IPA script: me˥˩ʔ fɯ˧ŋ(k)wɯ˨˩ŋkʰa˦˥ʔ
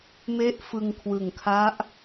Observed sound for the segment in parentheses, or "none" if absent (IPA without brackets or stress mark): kʰ